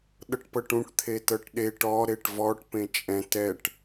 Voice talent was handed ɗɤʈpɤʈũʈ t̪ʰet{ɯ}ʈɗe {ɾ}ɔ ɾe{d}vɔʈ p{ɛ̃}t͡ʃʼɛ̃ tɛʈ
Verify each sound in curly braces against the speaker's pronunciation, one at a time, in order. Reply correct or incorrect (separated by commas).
incorrect, incorrect, incorrect, incorrect